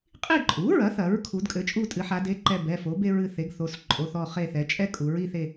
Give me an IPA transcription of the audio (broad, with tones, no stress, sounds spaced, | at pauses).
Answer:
qʼ i˦˨ ǃʼ u˩˥ ɹ ɐ˩˥ θ ɐ˩˧ ɹ kʰ u˩˧ d kʼ ɘ˩˥ t͡ʃʼ u˦˨ tʼ ɨ˩˧ ħ a˩˧ d e˩˧˩ ǃ ɛ˦˨ b ɛ˩˧˩ f o˩˥ b e˥ ɹ ɨ˦˨ θ e˩˥ ɡ θ o˩˧˩ s ǃʼ o˩˧˩ θ ɔ˦˨ χ e˦˨ θ ɛ˩˧ t͡ʃʼ ɛ˥ kʼ u˩˧ ɹ i˦˨ θ e˦˨